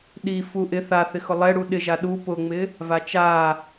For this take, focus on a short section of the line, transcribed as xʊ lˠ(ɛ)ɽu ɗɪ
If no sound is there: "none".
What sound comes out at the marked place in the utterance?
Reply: ɛ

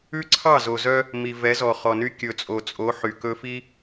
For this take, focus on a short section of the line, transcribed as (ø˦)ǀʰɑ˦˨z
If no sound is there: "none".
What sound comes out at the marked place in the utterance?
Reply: ʉ˦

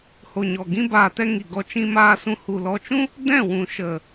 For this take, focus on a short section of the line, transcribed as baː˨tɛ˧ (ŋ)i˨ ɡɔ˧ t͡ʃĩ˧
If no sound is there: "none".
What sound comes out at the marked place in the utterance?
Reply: ŋ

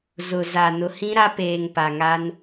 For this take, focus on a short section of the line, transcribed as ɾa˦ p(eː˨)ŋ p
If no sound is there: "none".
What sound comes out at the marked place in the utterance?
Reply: eː˨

